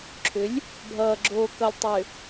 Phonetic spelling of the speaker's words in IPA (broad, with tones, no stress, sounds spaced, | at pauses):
ǁʰ ʏ˨˦ lʲ | bʱ ʌː˨ ɡ͡ǁ oː˨ k ʌ˨ lʲ tˤ ʏ˨